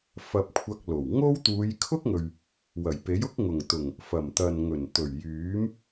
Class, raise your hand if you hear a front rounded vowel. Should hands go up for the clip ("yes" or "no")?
yes